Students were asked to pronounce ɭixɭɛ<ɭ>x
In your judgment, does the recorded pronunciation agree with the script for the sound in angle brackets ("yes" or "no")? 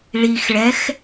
no